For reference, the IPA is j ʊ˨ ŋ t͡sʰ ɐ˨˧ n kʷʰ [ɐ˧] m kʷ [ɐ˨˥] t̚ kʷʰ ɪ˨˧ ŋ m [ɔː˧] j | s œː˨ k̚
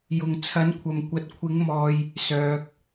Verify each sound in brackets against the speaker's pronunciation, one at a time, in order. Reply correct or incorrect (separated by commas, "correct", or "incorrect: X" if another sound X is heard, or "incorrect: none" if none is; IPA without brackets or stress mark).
incorrect: ɐ˨, incorrect: ɐ˨, incorrect: ɔː˨